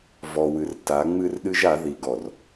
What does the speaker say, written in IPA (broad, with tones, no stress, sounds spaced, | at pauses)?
v ɔ˨ w ɨ˨ r t a˨˦ ŋ͡m ɨ˦ r ɗ ɨ˦ ʒ a˨˦ ð i˨ ɡ ɔ˨ r